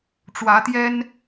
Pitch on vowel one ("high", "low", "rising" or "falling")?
rising